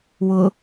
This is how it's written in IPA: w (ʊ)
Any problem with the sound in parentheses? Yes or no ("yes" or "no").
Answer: no